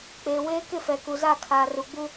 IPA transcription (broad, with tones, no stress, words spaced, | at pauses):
k͡peː˨ weː˦kɪ˦˨fɛ˨ ku˨za˦˨kʰaː˨ ru˨ɡ͡bu˦